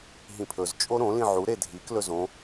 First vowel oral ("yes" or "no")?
no